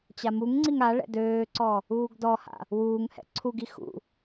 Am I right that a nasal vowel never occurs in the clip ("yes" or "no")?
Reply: yes